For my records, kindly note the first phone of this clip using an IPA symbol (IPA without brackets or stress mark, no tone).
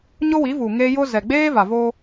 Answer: ɲ